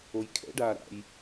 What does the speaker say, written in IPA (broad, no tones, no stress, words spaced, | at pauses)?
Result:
ojkʰɛ̰ɖaː ɾa̰j